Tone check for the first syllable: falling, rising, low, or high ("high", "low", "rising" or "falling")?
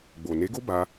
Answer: low